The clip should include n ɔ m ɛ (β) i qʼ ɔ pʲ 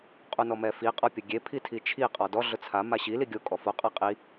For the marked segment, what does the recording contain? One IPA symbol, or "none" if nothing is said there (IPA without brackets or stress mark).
f